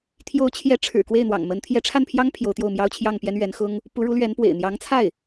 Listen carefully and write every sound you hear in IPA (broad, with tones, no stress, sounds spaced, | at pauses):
t̪ʰ j o˧˥ ʊ̯ t͡ɕʰ j ɛ˧˥ ʈ͡ʂʰ ɻ̩˨˩ k w e˥˩ ɪ̯ n̪ w ɑ̰˨˩ ŋ m ə˧˥ n t̪ʰ j ɛ˧˥ ʈ͡ʂʰ a˥˩ n pʰ j ɑ˥ ŋ pʰ j o˧˥ ʊ̯ t̪ j o˥˩ ʊ̯ m j ɑ˥ ʊ̯ t͡ɕʰ j ɑ˥˩ ŋ p j ɛ˥ n ɥ ɛ˧˥ n x ʊ˥ ŋ | p u˧˥ ɻ u˧˥ l ɥ ɛ˧˥ n p w ḛ˨˩ ɪ̯ n̪ j ɑ˧˥ ŋ t͡sʰ a˥˩ ɪ̯